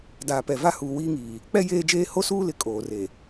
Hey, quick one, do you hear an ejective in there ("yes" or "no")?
yes